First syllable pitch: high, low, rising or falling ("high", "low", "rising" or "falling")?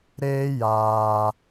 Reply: high